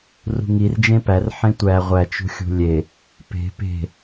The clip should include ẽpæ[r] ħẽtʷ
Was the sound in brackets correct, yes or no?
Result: yes